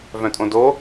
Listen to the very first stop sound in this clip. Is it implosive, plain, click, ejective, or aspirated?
ejective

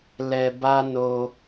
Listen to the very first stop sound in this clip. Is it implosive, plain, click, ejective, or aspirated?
plain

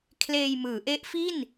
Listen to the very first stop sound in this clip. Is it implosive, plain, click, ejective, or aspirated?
aspirated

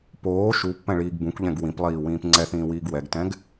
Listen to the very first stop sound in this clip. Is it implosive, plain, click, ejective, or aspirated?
plain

